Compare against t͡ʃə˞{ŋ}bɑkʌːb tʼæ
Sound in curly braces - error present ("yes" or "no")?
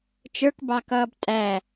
yes